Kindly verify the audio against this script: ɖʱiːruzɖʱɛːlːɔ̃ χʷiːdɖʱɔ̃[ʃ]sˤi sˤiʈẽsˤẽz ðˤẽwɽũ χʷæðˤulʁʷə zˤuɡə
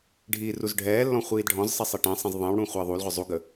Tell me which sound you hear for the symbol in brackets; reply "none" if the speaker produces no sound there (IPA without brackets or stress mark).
z